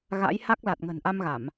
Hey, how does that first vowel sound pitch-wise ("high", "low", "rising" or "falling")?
rising